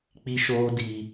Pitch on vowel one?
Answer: high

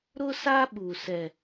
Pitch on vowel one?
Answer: high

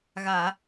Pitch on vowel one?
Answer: low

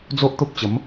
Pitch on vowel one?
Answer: high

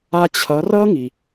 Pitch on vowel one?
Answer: high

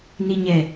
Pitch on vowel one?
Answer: low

